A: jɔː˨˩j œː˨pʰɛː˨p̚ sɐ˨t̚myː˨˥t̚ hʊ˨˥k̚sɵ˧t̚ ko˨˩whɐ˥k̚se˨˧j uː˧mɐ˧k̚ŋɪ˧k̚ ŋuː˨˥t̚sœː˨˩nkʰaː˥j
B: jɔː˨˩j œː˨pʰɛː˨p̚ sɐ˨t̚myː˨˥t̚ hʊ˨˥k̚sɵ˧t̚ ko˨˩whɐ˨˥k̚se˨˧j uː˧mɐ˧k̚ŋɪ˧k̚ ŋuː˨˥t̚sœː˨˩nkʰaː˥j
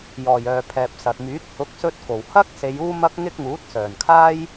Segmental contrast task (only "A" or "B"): A